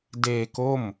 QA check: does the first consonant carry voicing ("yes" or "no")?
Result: yes